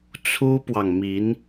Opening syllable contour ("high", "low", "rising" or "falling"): high